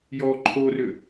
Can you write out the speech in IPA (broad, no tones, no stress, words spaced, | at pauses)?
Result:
jɔ ǃʰorʏ